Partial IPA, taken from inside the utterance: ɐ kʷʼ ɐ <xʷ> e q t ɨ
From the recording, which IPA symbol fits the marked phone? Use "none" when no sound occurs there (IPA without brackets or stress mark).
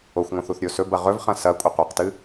qʷ